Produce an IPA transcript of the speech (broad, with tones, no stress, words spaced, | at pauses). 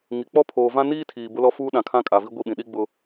ŋi˨k͡pɔ˦ pʰoː˨vã˦niː˦tʰiː˨ bʊ˦lɔ˦fuː˦ ɗã˨kʰã˦kʼa˨vi˦ ɡʷi˦˨ɓĩ˨ ɗi˦ɡ͡bʊ˦